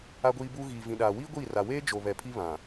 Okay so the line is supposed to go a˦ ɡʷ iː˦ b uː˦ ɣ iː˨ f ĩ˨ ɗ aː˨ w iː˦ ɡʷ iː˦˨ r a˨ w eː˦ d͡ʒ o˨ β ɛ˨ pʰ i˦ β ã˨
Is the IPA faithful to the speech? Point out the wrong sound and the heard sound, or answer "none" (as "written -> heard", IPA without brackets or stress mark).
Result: f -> v